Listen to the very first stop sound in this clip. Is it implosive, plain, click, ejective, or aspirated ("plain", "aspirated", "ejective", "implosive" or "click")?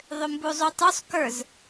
plain